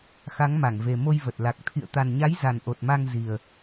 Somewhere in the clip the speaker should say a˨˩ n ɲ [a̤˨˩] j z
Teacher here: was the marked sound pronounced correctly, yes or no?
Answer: no